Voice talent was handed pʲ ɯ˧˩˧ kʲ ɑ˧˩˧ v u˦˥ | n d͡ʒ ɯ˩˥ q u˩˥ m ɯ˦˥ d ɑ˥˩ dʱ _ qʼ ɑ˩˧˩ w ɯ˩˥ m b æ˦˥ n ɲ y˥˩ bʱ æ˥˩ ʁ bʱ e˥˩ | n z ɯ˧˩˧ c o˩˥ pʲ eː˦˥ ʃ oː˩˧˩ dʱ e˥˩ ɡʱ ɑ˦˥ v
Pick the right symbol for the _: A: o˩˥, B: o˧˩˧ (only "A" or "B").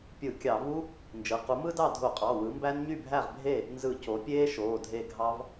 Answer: B